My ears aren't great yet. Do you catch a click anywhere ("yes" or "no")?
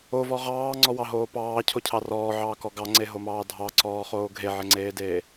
yes